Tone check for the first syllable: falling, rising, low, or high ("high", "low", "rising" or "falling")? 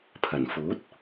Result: low